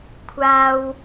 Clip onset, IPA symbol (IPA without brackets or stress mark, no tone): kʷʰ